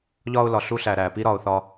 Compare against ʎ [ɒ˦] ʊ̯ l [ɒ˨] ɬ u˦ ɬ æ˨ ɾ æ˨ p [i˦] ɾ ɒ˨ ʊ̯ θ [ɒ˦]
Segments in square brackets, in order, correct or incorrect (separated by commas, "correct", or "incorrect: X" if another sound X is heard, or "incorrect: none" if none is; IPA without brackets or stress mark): correct, correct, correct, correct